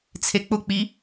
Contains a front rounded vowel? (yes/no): no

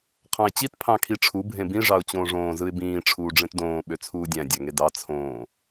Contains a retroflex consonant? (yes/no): yes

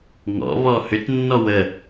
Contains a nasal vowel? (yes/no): no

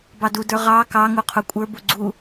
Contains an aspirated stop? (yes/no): yes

